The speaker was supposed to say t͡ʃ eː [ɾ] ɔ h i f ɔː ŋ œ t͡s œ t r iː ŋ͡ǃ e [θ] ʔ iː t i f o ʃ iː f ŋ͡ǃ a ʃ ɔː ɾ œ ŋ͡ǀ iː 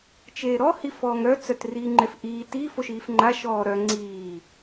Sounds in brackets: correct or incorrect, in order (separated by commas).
correct, incorrect